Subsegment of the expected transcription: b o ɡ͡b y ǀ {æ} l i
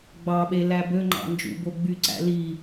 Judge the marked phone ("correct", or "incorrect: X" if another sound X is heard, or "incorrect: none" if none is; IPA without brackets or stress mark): incorrect: æ̰